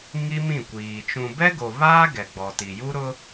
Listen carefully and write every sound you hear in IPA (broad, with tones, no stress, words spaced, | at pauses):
ŋi˦mĩ˦˨kʷiː˨ t͡ʃũ˨bɛ˦ɡo˨ βaː˦ ɡɛ˨ ɡ͡bɔ˨ti˨ ju˦ɾʊ˦